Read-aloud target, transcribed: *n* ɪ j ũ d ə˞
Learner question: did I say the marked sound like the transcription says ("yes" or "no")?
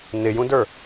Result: yes